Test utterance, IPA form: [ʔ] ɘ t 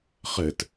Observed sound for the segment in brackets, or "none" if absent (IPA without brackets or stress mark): χ